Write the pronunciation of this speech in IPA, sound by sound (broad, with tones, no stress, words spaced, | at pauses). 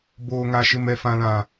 boː˦ŋa˦ ʃɪ˦mɛ˦fã˦lã˦